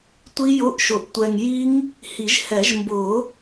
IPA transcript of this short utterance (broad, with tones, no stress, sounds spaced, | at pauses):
tʷ i˦˥ j ʊ˧˥˧ ʔ ʃ ʊ˨ ʔ tʷ ɛ˨ ŋ j i˦˥ ŋ | h i˨˩˦ ʒ h ɛ˨˩˦ ʒ m b ʊ˨˩˦